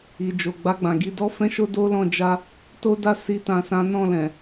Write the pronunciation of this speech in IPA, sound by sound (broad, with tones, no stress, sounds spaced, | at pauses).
i˨ d͡ʒ o˨ ɡ͡b a˧ ɡ͡b ã˨ ɡ i˧ d ɔ˦ f ɛ̃˦ ʃ o˦ d o˦ l ɔ̃˧ d͡ʒ a˦ | t o˦ d a˦ s i˦ t ã˧ s ã˦ n ɔ̃˦˨ l ɛ̃˨